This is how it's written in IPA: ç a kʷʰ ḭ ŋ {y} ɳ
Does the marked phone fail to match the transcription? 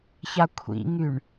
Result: no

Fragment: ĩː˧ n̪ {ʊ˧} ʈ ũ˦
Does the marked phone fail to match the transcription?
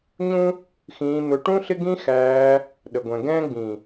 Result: no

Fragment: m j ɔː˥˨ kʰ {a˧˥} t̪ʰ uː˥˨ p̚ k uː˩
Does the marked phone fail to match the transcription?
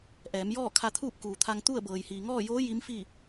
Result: yes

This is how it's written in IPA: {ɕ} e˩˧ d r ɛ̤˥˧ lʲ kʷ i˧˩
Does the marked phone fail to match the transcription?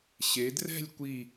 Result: no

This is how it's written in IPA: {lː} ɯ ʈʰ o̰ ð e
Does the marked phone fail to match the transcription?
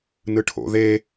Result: yes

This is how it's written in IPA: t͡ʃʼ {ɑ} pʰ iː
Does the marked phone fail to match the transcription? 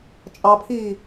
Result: no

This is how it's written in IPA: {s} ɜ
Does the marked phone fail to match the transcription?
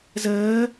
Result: yes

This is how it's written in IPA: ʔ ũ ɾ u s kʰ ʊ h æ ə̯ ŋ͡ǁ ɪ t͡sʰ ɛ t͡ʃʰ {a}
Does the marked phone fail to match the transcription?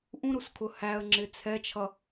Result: yes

